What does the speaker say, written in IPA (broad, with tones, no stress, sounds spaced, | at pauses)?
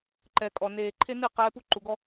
ǃ ɛ˨ kʼ ɔ˨ n eː˨ ǃʰ e˦ n ɨ˦˨ q ɛː˧ p u˧ ǃ u˨ ɡ ɔ˧